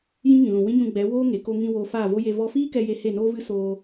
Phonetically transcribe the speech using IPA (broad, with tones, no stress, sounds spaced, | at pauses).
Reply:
j ĩ˦ ŋ ĩ˨ l ũ˨ w ĩ˦ ɲ ũ˧ ɡ͡b ɛ˨˦ w oː˦ ŋ e˨ k o˧ ŋ ĩ˧ w oː˧ f aː˦˨ v o˦ j e˧ v ɔ˦ f iː˦ k ɛ˧ j e˧ h e˦˨ n oː˦ v ɨ˦ s oː˧